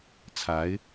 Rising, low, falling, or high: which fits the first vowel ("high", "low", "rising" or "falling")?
rising